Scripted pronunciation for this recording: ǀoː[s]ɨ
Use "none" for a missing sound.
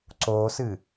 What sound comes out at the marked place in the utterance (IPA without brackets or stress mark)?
s